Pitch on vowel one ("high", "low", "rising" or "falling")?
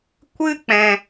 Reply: high